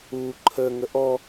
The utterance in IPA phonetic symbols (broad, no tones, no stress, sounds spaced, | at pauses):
u ǃʰ ə ŋ ə ʔ ɔ